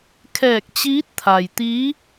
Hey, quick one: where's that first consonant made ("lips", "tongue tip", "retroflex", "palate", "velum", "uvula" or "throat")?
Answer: velum